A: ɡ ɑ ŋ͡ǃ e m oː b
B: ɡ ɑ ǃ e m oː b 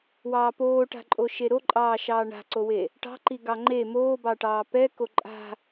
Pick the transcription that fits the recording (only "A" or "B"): A